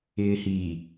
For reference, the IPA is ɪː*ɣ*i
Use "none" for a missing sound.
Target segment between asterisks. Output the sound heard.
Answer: h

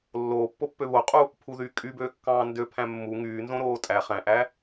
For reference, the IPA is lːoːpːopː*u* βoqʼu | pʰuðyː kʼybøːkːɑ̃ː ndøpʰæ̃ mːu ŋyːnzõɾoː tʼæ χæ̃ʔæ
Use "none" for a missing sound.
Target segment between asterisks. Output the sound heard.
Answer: ø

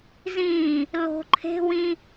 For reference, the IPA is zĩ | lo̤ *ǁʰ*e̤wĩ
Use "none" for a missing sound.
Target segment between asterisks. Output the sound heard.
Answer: ǃʰ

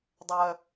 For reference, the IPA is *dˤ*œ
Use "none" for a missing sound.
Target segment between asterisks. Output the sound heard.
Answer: dˤ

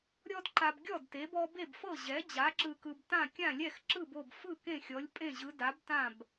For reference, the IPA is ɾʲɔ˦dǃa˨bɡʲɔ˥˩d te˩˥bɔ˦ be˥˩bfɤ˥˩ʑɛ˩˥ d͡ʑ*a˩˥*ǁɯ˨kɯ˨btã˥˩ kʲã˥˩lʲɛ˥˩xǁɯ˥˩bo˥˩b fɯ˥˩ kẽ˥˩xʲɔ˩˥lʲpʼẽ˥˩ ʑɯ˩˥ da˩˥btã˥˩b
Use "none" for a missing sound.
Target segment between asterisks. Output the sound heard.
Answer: a˩˥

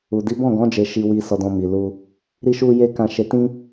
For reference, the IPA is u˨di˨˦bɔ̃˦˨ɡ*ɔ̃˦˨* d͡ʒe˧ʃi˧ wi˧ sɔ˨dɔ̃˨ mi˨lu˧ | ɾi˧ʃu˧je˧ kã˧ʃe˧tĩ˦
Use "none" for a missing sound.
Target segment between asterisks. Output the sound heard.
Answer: ɔ̃˨˦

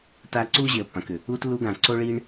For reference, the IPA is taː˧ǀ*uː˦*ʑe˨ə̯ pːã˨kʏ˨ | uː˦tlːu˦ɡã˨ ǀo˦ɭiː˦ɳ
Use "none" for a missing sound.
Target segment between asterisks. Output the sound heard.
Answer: uː˦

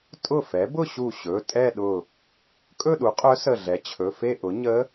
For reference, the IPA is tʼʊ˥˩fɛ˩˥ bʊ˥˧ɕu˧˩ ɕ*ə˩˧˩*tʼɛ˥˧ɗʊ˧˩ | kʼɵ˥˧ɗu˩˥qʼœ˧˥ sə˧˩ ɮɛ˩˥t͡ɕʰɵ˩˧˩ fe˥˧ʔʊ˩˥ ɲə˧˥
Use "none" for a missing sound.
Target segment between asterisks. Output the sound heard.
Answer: ɵ˩˧˩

